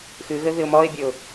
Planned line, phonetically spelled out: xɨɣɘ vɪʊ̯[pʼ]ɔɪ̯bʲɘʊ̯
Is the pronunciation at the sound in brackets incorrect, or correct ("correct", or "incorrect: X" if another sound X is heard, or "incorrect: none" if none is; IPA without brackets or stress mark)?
incorrect: m